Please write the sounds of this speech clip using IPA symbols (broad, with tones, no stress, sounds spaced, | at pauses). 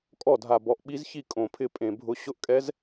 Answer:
kʼ ɔ˥˩ dʱ a˨˩ b ɔ˨˩ ʔ ɓ i˧˥ z ç i˥˩ kʼ õ˨˩ pʰ ɪ˥˩ pʼ ẽ˨˩ bʱ ʊ˧˥ ɕ ʊ˧˥ ʔ kʼ ɛ˧˥ z